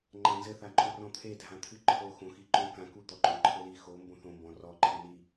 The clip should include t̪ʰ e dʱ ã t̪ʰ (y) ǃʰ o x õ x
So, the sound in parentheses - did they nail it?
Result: no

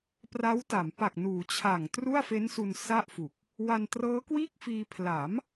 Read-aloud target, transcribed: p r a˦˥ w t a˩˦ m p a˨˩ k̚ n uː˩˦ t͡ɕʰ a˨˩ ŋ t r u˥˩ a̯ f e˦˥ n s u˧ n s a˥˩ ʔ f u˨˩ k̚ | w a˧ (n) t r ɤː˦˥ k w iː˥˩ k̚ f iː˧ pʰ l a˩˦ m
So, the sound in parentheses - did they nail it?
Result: yes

